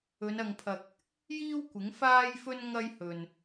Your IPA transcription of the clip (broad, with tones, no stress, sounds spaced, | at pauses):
ɵ˨˧ n ɐ˨ ŋ pʰ ɐ˨ k̚ | j iː˥ w kʷ ɪ˨˥ ŋ f aː˥ j f ɵ˥ n ŋ ɐ˥ j h ɵ˨ n